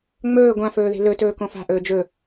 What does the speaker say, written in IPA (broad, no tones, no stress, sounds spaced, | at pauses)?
ŋ͡m ɵː ɡʷ ã f ɵː ð e̤ l ɵ t ɵː k õ f a̤ ʔ ɵː d͡ʒ ɵ